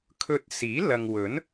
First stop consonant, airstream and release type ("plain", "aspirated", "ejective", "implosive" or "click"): aspirated